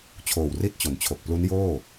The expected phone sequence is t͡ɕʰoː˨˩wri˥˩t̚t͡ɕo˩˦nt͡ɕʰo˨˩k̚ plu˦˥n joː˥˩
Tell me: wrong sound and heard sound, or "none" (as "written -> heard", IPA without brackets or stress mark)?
none